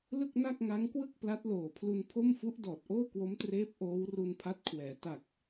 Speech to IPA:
l ɯ˥˩ k̚ n a˥˩ k̚ ŋ a˦˥ ŋ k w ɯ˥˩ k̚ p l a˦˥ t̚ l oː˨˩ pʰ l u˧ n pʰ o˥˩ m f u˦˥ ʔ d ɔː˨˩ t̚ ʔ oː˥˩ k w o˦˥ m t r eː˦˥ p̚ ʔ oː˦˥ w r u˧ n pʰ a˦˥ t̚ kʰ w ɛː˩˦ t a˨˩ k̚

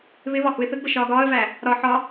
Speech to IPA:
β ɪ β ɒ h u ɪ̯ θ ə ɡ b ə ʃ ɒː ɡ ɒː ə̯ v æ | ɾ ɒ ħ ɒ

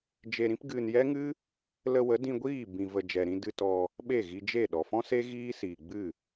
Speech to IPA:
d͡ʒ e˧ ɾ ĩ˦ p ɡ ɨ˧ n j ɛ˦ ŋ ɨ˦ | l ə˧ w ə˨˦ d ĩ˧ ɡʷ iː˦˨ b ĩ˨ v ə˨ d͡ʒ ɛ˨ ɾ ĩ˧ d ɨ˧ t ɔ˧ | ɓ e˦˨ ɣ i˧ d͡ʒ e˦˨ ɗ ɔ˨ f ɔ̃˦ s e˦ ɣ iː˦ s iː˨ ɡ͡b ɨ˦˨

